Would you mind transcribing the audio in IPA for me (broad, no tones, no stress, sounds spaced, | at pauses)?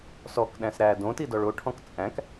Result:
s ɔ k ɗ æ̃ s ɾ æ d õ t i d ɔ ɭ o ʈʰ ɔ̃ k t͡sʼ æ̃ k